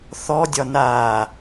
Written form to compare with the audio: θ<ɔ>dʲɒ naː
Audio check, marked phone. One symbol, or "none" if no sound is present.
ɔ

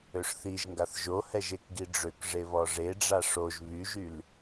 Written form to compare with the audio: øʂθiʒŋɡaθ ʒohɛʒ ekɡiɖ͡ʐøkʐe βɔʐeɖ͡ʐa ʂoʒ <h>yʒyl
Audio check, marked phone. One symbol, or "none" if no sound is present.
β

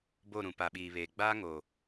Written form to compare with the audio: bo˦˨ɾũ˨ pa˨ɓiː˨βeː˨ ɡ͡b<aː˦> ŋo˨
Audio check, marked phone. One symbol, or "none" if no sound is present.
aː˦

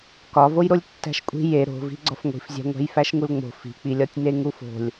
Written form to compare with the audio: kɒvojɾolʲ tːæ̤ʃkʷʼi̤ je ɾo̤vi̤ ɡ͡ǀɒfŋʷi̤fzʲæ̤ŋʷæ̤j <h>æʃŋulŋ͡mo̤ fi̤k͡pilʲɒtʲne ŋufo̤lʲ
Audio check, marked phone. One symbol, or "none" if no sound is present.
f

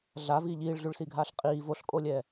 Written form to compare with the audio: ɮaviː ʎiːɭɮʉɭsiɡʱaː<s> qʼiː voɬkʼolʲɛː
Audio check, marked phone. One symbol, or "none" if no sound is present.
ɬ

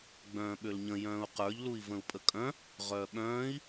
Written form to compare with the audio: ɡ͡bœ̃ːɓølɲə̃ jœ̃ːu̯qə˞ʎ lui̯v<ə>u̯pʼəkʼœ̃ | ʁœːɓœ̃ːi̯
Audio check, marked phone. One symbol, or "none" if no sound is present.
ə̃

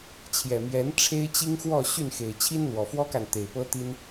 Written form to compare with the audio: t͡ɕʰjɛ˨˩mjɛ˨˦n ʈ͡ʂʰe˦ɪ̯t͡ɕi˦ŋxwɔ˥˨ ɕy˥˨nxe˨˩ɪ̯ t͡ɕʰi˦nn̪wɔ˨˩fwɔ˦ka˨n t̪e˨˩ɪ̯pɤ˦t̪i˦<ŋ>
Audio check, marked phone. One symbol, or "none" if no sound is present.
n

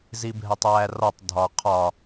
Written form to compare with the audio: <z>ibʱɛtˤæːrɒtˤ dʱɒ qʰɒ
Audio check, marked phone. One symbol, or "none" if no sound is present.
z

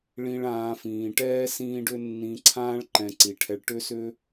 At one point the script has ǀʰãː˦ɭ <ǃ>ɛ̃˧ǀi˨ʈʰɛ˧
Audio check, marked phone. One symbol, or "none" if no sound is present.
ǃ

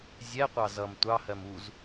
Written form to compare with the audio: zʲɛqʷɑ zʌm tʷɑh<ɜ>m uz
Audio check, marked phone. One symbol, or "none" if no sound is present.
ɜ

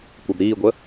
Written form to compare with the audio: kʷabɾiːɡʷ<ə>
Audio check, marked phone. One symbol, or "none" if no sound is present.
ə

